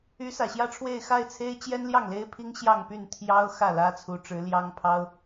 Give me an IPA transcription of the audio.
y˧˥ s ä˨˩ ɕ j ä˥ ʈ͡ʂʰ w e˥˧ ɪ̯ x a˥˩ ɪ̯ t͡sʰ e˥ ɪ̯ t͡ɕ j ɛ˥ n l j ɑ˥˩ ŋ l e˥ ɪ̯ pʰ i˥ ŋ ɕ j ɑ˥˧ ŋ p y˥˩ n t̪ʰ j ɑ˥ ʊ̯ x ä˥˩ l ä˥ t͡sʰ u˧˥ ʈ͡ʂ ɻ̩˧˥ l j ɑ˥ ŋ pʰ ɑ˥ ʊ̯

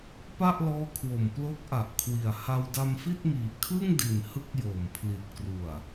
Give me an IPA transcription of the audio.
p a˥˩ ʔ l ɔː˦˥ kʰ w o˨˩ m p l o˦˥ k̚ ʔ a˨˩ ʔ kʰ w i˨˩ a̯ h a˧ w d a˧ m f i˥˩ t̚ m iː˨˩ kʰ ɯ˥˩ ŋ d i˨˩ n h ɯ˥˩ k̚ j oː˨˩ m pʰ l i˨˩ t̚ k r u˨˩ a̯

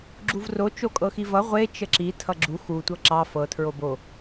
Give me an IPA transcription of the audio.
ɡ͡ǁ u v r o t͡ʃ o kʼ ɤ x i v ʌ ʁʷ e t͡ʃ ə ǁ i tʰ ʌ ɡ͡ǁ u x u tʷ ɤ ǁ ɑ f ɤ tʰ ɹ o b o

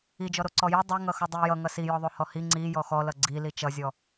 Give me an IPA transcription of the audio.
i d͡ʒ ɔ ɾ o ǀ ɔ j ʌ dˤ o ŋ ʌ x ʌ dˤ i j ʌ ŋ ʌ s i j ɔ ðˤ o h ɔ h i ŋ͡ǀ i j ɔ x ɔ l ʌ ɡ͡ǀ i l i t͡ʃ ʌ zʲ ɔ

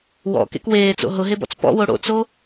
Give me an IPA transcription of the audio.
w ɔ̰ k ḛ k w eː t͡s o̰ ɦ ʊ ɦ e b ɔ̰ t͡s p ɔ̰ w o ɽ o̰ t͡s o

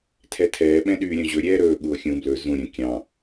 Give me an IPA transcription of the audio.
tʰ ɛ tʰ ɛː ɓ ɛ̃ ɗ yː ɾʲ œ̃ ʑ ɵ ɾʲ ɛː ɾ ɵː ɠ u o̯ xʲ ũ b l ɵ z ũ ɾʲ œ̃ kʲ ɑ̃

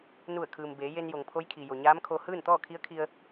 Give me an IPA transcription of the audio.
n u˧˩ ə̯ kʰ ɯː˩ m b eː˩˧ j e˧ n j o˩ ŋ pʰ o˧˥ j kʰ i˩ j o˩ ɲ aː˧˥ m kʰ o˧ h ɯː˥˨ n t̪ ɔː˥˨ kʰ i˧˥ ə̯ kʰ i˧ ə̯

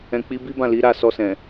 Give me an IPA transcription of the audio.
ɛ̃˨ k͡p i˨˦ b i˦ b ã˦˨ l i˨˦ ɾ a˦˨ s ɔ˧ s ɛ̃˨

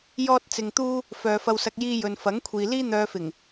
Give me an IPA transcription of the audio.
j ɔː˥ t̚ t͡s ɪ˧ ŋ t̪ uː˥ | f œː˨˧ f ɐ˧ w s ɐ˧ k̚ j iː˧ j ɵ˨ n f ɐ˨˥ ŋ kʷʰ iː˨ l iː˥ n̪ œː˧ f ɪ˨˩ ŋ

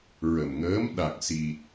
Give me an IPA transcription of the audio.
ɹ ə˨˩ m ŋ əː˧˥ m ɗ a˨˩ k̚ s i˨˩ t̚

